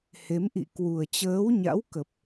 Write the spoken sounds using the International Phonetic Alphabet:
he˨˦mʔḭ˧˨ kwu˨˩ə̯t͡ɕəː˨˦wɲa̰˧˥wkə˨˩p̚

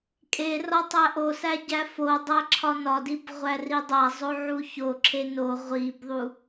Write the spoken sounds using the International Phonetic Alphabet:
kʼe rɒtˤæ ʔosæ ɟæfodˤæ ǁʰɒnɒdib ʁʷæridˤæzˤo ʕuçoǁʰe no ʁʷibðˤu

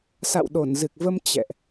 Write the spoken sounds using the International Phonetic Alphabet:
sa̰˧˨wɗo˧˩nzɨ˨˩k̚və˧m t͡ɕɛ̰˧˨ʔ

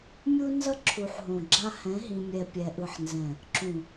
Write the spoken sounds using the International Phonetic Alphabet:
mʲu˦nzʌ˦ ǁʰu˨ħɦõ˨ɡ͡ǁa˦ hɛ̃˨˦ɦĩ˨mʲɛ˨ pʲɛ˨ʔɯ˨ħnzɛ̃˨ | ǁũ˨

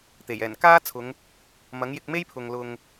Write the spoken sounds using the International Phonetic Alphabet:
t̪e˨˩jɛː˨˩n kaː˥t͡sʰʊ˨˧ŋ | mɐ˨˥ŋjɪ˧k̚me˥jpʰʊ˨ŋ lʊ˨ŋ

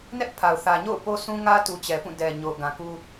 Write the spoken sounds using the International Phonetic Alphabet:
nɛ˦ʔpʰa˨ʊ̯ θä˨ɲo̰˦˨ʊ̯ po˦sũ˦ŋä˦tu˨ t͡ɕɛ˨pũ˦˨dɛ˨ ɲo˨ʊ̯ɡã˨ku˦

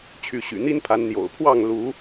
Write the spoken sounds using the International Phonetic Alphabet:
t͡ɕʰy˨˦ɕy̰˨˩n̪i˦npʰa˨˦n n̪jo̰˨˩ʊ̯pʰwɑ˥˨ŋ lu˨˦

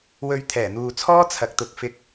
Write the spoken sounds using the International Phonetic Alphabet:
wɵ˨˧ɥ t̪ʰɛː˨˩n̪uː˨t͡sʰɔː˥ t͡sʰɐ˨k̚t̪ʊ˨˥k̚ fɪ˧k̚

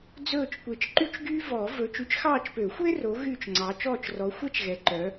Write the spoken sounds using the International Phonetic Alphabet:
d͡zɵː˦˨t͡ʃkʷe˨˦t͡ʃǃy˥t͡ʃɡyː˥ vɔː˨˩˦ vɵ˨˦ t͡ʃy˨˦t͡ʃxɑː˦˨t͡ʃpø˨˩˦xʷe˥ ro˨˦ ɣyː˦˨t͡ʃŋ͡ǀɑ˨˦ t͡ʃɔː˦˨t͡ʃrɔ˨˦xʷɛ˥t͡ʃɣɛ˨˦ ǃœ˨˦

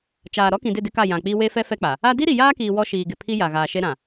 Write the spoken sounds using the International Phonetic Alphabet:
t͡ʃaː˨ ɾɔ˦kĩ˨dɪ˦˨ dɪ˦ka˦˨ jã˨k͡pi˦ we˦fɛ˦ fɛ˦k͡pa˨ | a˦ di˦ɾi˨jaː˦kiː˨ wɔ˦ʃiː˨ɡɪ˨pʰi˦ ja˨ ɣaː˨ʃe˦ɾã˨

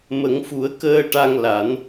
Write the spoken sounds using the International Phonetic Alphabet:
mə˨˩˦ŋfu˨˩˦ə̯ kəː˧ʈa˧ŋla˨˩˦n

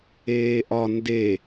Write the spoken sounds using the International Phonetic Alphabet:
eːʔɒ nde

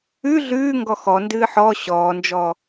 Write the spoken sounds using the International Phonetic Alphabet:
ʉ ɮʉːŋɡɔ xɔndɨː ħɔ ɕɔːnd͡ʒɔ

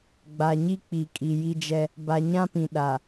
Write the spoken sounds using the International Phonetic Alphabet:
ɡ͡ba˨ɲi˦k͡pi˨ kʼi˨ji˦d͡ʒɛ˦ | ba˨ɲã˦pĩ˨ ɗa˨

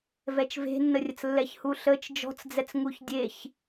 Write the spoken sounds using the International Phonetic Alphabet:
vɛt͡ʃve̤nːərʲət͡s lːɛçhuɬət͡ʃ d͡ʒɔ̤t͡sd͡zɛt͡sŋuç dʲeç

